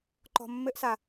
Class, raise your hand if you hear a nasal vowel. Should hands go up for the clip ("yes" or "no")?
no